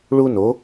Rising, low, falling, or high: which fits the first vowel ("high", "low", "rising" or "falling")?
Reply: high